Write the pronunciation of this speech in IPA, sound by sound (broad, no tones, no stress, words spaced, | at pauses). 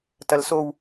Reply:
tɐlsow